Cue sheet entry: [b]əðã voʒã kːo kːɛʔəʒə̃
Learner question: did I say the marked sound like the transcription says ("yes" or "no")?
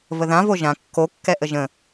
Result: no